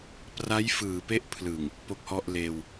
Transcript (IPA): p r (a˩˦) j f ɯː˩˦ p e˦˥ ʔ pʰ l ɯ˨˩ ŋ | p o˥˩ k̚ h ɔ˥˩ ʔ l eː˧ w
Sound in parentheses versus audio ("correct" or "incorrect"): incorrect